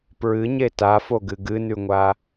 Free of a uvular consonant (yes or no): yes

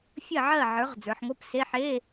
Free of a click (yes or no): yes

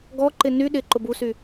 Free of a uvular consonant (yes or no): yes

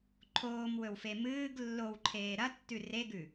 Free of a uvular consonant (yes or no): yes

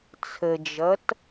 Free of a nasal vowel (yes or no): yes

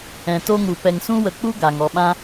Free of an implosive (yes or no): no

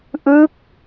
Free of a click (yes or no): yes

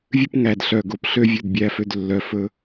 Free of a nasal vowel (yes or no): yes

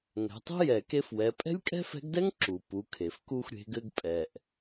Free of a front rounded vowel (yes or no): yes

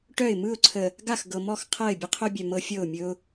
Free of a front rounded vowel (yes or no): no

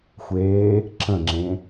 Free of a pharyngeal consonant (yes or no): yes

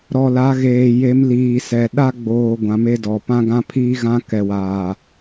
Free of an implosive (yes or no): no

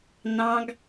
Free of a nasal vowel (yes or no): no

